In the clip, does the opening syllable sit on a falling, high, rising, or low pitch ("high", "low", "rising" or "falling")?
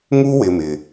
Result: high